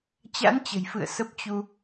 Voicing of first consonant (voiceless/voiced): voiceless